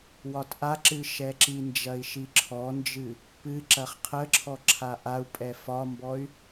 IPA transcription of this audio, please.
w ɒ t ʔ a ǁ ɨ ʃ ɛ ǁ i n d͡ʒ ɐ i̯ ʃ i ǁʰ ɔ n d͡ʒ ɨ | p ɨ ǁ ɐ χ qʰ ə ǁʰ ɔ ǁʰ a ʔ a u̯ pʼ ɛ f ɒ m b ɔ y̯

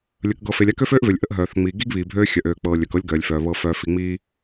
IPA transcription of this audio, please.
lʲ ə˨ k ɡ ɤ˨ f e˨ lʲ a˦ k ø˦ f øː˦ ʔ v ø˨ lʲ ʔ ə˦ ʔ ɦ œː˨ θ ŋ͡m iː˨ ɡ i˦ ɡ β iː˨ bʱ øː˦ xʲ œ˨ ʔ øː˨ k͡p ɤː˨ lʲ œ˨ k ɤ˦ lʲ ɡ œː˨ lʲ f œː˨ β ɤ˨ f œː˨ f i˨ ŋ͡m iː˦

